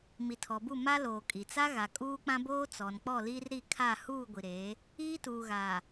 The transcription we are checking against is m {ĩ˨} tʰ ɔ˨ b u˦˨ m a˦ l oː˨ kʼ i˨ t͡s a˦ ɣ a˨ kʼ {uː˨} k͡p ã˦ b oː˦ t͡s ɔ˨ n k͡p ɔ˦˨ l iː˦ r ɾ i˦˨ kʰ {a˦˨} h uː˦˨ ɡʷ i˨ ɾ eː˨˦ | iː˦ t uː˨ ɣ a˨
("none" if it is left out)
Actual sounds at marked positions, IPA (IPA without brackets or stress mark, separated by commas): i˨, uː˦, a˦˨